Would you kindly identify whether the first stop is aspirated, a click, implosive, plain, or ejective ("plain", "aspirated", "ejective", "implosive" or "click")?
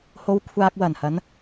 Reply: aspirated